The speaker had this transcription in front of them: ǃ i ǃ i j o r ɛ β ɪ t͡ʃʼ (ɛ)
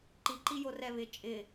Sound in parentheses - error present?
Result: yes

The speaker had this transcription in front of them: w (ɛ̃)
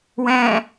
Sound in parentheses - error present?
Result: no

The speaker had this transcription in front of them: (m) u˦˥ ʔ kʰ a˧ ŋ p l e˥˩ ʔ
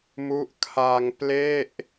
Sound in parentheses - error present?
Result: no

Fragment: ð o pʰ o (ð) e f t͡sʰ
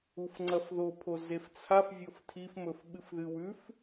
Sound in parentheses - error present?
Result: yes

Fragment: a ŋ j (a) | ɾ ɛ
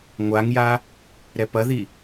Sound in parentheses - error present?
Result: no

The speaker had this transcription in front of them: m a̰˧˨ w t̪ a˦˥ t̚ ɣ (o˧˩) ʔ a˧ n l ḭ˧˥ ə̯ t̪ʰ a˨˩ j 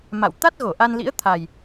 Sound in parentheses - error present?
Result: no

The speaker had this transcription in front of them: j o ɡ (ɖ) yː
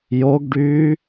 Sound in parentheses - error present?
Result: no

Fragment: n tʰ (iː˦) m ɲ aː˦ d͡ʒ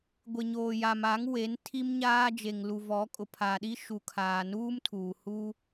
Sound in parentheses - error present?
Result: yes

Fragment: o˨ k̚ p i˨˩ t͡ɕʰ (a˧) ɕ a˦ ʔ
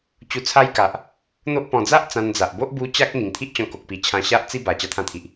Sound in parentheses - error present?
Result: yes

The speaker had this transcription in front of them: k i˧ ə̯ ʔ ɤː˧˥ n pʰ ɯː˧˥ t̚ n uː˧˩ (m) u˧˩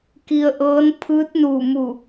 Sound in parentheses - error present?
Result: no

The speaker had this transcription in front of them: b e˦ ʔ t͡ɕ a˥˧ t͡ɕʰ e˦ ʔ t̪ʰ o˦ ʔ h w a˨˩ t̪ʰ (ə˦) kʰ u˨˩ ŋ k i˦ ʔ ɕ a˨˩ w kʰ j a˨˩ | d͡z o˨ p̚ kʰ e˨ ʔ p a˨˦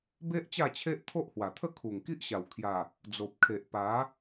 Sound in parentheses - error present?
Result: yes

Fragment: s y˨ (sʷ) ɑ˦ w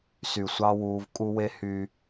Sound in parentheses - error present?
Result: no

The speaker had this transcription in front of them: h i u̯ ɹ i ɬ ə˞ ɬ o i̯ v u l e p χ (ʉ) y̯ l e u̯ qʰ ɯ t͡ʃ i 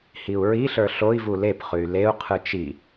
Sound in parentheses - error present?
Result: no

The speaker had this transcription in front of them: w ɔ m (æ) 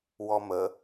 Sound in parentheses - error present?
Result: yes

